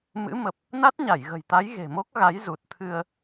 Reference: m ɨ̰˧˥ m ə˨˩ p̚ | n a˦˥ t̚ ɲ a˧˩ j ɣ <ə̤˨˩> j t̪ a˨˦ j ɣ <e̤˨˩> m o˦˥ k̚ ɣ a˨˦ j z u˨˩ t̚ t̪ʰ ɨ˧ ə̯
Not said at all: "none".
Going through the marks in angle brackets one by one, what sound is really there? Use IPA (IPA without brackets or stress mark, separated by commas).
ə̤˨˩, e̤˨˩